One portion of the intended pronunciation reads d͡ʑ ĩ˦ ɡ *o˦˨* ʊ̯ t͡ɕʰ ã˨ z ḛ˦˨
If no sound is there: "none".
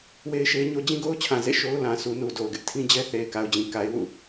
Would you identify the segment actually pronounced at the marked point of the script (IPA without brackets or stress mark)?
o˦